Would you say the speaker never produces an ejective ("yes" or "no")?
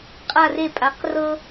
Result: no